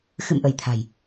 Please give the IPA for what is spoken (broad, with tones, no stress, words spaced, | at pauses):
xɨ̰˧˨mʔə˧˩j t̪ʰa̤˨˩j